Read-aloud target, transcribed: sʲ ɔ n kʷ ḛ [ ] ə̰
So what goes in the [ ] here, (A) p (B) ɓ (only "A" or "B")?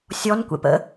A